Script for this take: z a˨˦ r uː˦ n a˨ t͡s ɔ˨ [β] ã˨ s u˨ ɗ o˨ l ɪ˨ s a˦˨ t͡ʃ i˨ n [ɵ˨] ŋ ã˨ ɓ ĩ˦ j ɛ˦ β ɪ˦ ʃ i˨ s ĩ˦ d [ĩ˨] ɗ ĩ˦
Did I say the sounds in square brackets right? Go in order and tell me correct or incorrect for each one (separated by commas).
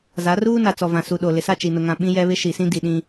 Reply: incorrect, incorrect, incorrect